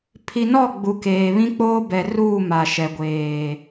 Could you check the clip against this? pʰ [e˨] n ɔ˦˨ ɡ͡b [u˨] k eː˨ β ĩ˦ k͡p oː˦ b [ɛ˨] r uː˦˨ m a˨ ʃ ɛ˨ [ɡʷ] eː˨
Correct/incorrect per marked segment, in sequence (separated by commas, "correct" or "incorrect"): incorrect, correct, correct, correct